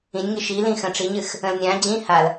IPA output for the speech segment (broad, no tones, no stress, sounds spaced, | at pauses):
ĩ nʲ ŋ i ʃ i l ĩ x ə̃ ʈ͡ʂ i ɲ ɨ x | ə̃ l nʲ ã d͡ʑ ĩ h a l